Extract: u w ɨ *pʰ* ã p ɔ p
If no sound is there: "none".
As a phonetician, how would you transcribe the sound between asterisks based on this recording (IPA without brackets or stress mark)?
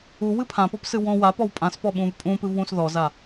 pʰ